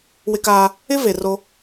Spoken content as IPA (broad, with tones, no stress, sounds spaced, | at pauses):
w ɪ˦ k aː˦ | ɪ˦ v e˨ r o˦